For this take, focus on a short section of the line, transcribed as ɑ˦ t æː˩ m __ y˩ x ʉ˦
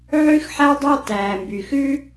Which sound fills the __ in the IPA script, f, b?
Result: b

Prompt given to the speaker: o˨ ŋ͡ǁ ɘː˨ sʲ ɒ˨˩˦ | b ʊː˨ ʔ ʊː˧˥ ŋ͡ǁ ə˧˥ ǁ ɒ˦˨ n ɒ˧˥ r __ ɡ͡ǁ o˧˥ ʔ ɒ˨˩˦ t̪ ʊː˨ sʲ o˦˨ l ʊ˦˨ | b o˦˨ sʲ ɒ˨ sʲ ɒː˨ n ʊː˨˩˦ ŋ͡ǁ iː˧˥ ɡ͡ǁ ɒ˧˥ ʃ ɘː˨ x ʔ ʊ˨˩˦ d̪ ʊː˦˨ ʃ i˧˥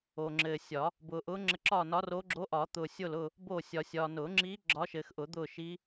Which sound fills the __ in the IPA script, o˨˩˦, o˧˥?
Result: o˧˥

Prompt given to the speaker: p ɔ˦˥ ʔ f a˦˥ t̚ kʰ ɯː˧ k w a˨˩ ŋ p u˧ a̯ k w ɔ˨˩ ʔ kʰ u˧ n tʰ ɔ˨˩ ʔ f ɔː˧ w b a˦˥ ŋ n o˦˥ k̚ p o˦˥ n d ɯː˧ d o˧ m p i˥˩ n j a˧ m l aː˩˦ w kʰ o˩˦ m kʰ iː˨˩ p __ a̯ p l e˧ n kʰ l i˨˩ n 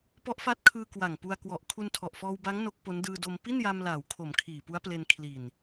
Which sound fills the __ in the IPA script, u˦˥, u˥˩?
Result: u˦˥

